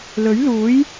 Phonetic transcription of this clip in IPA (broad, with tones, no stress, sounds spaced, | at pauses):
l ɵ˨˥ ɥ l uː˨˥ j